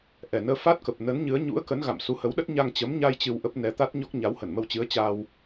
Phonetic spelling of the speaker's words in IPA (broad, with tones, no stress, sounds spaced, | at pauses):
ʔ ɛ˨˩ n əː˧ f a˦˥ t̚ k ə˨˩ p̚ n ə˨˦ n ɲ ɨ˨˦ ə̯ ɲ ṵ˧˥ ə̯ k ə˨˦ n ɣ a̰˧˨ m s u˨˦ h ə˨˦ w ɗ ə˦˥ t̚ ɲ a˧ ŋ t͡ɕ ə˨˦ m ɲ a˧ j t͡ɕ ɨ˧ w ʔ ə˦˥ p̚ n ɛ˨˦ t̪ a˦˥ t̚ ɲ ɔ˦˥ k̚ ɲ a˨˦ w h ə˧˩ n m ə˧ w t͡ɕ ɨ˨˦ ə̯ t͡ɕ a˧ w